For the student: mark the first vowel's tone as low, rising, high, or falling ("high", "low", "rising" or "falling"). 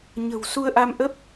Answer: low